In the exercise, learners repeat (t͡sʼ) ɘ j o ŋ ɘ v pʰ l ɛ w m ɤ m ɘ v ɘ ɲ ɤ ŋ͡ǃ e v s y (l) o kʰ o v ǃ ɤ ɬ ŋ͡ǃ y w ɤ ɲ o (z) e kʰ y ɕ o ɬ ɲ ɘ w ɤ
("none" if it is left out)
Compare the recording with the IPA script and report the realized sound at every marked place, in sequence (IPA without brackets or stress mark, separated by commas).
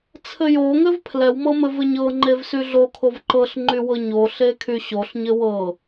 t͡sʰ, ɮ, ɬ